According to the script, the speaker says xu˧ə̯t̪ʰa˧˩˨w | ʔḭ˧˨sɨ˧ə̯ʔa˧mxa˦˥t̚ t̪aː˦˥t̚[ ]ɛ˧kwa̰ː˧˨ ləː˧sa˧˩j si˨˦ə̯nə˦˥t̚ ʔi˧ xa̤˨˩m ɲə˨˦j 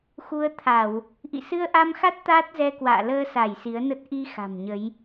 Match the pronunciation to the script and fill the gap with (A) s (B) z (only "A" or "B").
B